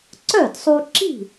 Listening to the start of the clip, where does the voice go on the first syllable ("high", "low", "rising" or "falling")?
falling